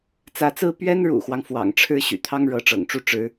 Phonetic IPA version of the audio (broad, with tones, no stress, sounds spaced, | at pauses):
t͡s ä˧˥ t͡s ɹ̩˥ p ɥ ɛ˥ n ɻ ṵ˨˩ x w ɑ˦ ŋ f w ɑ̰˨˩ ŋ ʈ͡ʂʰ ɻ̩˥ ɕ y̰˨˩ t̪ʰ ɑ˥ ŋ ɻ ɤ˧˥ ʈ͡ʂ ɤ̰˨˩ ŋ ʈ͡ʂ u˥˩ ʈ͡ʂ ɻ̩˧˥